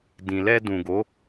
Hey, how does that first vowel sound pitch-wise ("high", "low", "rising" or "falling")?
low